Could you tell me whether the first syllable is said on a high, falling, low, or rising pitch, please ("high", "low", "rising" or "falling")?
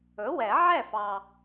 rising